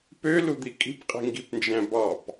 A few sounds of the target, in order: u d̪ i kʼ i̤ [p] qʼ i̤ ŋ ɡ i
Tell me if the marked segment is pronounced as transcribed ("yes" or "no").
yes